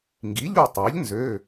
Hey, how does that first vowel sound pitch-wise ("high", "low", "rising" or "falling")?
rising